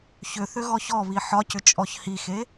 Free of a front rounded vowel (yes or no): no